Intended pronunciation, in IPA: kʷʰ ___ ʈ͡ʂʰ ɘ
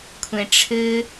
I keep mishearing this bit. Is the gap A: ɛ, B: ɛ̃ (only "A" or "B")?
B